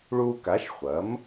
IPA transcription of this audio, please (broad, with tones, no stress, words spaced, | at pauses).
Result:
ɭuː˧ka˩˥ʃχʷɐ˩˥m